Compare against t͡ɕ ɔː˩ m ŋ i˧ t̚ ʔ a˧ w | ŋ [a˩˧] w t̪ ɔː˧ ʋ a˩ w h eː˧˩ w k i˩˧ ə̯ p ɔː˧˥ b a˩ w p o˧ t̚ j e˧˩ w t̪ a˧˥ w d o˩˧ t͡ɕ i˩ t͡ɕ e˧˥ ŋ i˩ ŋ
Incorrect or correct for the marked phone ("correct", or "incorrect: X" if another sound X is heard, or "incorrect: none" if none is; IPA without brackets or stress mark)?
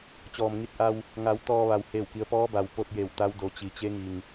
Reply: correct